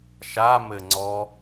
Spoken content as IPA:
ʃ a m ɘ ŋ͡ǀ ɔ

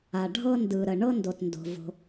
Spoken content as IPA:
a˩ ɖʱ ɤ˧ n d ɯ˩ ɾ ə˩ ɳ ɤ˧ n d o˩ t n d o̤˩ v o̤˩

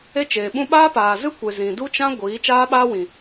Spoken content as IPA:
e˦ t͡ʃ eː˨ ɓ ũ˦ ɓ aː˦ p aː˨ z ɨ˦ kʷ e˨ z ĩ˨ d u˦ t͡ʃ ã˦ ɡʷ iː˨˦ t͡ʃ aː˦ ɓ aː˦ w ĩ˨

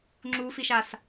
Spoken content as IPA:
ŋ͡ǁ u f i ʃ a s

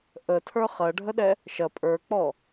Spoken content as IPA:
ʔ ə tʰ ə˞ χ ɐ ɖʱ ə ɗ ɛ | ʃ ɐ pʼ ə˞ k͡p ɔ

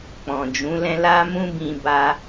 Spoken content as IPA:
k͡p ɔ̃˨ d͡ʒ ũ˨˦ l ɛ̃˦ l a˦ m ũ˦ b ĩ˧ b a˦

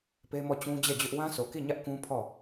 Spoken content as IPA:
p e˦ m ɔ˦˨ t͡ɕ ũ˦ d͡ʑ ɛ˦˨ d͡ʑ ʊ˦ ʔ w ã˦ sʰ o˨ k i˦˨ ɲ ä˦ ʔ k ũ˦ pʰ ɔ˦˨

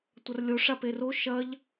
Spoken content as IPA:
tʷ ɐ r lʲ o ʂ a p e r o ʃ ɐ ʎ

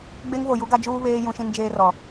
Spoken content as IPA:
ɡ͡b e˦ ŋ v o˨ j u˦ ɡ a˦ d͡ʒ uː˦ β eː˦ j ũ˦ ʃ ĩ˦ n d͡ʒ eː˦ r ɔ˨

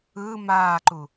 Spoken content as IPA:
ɯː m aː ǃ u

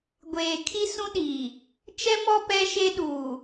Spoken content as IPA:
ɡʷ eː˨ kʰ i˦ s ũ˦ ɗ iː˨ | t͡ʃ ɛ˦ m ɔ˦ p ɛ˦ ʃ e˦ ɗ uː˨

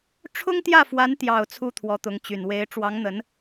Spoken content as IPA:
ʈ͡ʂʰ ʊ˥ ŋ t̪ j ä˥˩ f w a˧˥ n t̪ j ɑ˨˩ ʊ̯ t͡sʰ u˥ t̪ʰ w ɔ˧˥ t̪ ʊ˧˥ ŋ t͡ɕ y˨˩ n w e˧˥ ɪ̯ ʈ͡ʂ w ɑ˧˥ ŋ n̪ ə˧˥ n

